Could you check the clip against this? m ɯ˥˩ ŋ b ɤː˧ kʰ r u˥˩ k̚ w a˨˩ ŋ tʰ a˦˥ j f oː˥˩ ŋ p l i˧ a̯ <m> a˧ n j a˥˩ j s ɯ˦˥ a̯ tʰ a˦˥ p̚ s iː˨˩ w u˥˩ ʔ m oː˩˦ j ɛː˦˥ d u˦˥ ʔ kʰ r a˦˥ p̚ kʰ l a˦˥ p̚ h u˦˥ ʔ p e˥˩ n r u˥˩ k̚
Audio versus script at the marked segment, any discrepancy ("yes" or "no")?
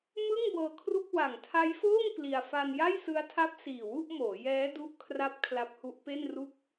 yes